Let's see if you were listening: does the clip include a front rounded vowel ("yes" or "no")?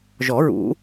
no